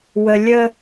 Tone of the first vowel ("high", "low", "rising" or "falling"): low